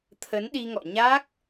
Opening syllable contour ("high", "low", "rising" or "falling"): rising